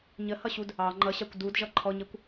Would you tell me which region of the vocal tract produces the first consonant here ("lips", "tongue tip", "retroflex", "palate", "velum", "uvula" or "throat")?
palate